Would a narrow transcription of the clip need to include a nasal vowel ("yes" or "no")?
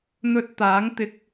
no